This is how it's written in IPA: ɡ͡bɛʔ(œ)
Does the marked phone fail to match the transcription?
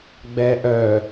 no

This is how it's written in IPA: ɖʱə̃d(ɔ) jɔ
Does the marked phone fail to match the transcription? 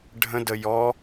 yes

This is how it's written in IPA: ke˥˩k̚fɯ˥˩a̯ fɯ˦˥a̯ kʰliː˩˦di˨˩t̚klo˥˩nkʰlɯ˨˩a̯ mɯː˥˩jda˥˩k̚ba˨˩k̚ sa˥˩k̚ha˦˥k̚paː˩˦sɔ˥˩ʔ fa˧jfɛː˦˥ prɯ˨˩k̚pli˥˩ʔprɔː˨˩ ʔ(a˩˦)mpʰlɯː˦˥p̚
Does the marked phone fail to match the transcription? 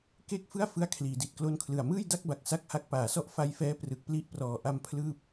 yes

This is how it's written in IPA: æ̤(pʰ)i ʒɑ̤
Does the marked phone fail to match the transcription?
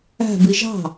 yes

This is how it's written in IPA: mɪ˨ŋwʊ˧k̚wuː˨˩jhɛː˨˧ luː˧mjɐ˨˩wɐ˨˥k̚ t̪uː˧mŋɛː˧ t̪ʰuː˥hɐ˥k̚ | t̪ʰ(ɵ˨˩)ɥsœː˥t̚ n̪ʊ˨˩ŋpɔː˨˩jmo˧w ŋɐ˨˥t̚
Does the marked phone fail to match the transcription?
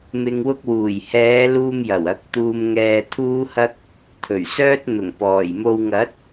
no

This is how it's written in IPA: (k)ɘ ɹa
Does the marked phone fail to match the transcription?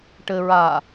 yes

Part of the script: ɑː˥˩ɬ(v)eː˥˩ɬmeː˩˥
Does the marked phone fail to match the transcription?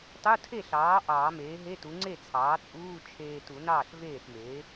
no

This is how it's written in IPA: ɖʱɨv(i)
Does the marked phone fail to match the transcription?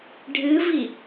no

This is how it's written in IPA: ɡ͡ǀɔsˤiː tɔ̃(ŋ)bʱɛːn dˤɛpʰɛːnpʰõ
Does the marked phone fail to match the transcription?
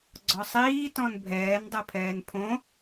yes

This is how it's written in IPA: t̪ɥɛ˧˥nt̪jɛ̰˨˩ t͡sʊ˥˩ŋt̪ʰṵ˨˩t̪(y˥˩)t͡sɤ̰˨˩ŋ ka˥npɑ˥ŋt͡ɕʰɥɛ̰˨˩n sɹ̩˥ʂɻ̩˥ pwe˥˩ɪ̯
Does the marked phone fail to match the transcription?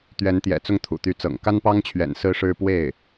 yes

